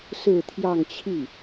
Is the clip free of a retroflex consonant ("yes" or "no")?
yes